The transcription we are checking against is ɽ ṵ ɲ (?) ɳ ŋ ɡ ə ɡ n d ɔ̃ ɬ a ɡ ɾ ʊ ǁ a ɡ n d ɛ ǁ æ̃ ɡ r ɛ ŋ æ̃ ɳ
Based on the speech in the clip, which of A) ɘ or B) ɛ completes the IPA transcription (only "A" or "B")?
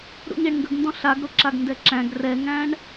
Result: B